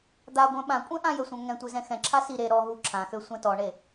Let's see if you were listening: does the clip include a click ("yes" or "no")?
yes